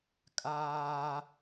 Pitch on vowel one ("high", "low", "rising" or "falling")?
high